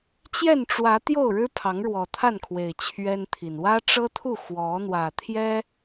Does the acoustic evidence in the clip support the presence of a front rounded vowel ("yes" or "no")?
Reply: no